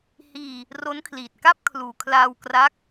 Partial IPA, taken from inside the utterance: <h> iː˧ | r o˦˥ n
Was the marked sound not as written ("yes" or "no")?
no